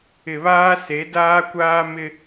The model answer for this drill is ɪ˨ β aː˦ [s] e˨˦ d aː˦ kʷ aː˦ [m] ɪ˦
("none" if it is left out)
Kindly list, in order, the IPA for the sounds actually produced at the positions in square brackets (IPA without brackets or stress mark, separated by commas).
s, m